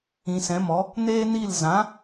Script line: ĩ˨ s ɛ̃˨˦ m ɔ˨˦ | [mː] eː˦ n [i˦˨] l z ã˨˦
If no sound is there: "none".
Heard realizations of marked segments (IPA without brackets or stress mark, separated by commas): n, i˦˨